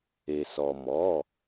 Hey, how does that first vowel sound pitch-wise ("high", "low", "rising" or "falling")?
low